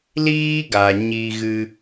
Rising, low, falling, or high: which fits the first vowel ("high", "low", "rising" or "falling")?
high